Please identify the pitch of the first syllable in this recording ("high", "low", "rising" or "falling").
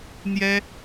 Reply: high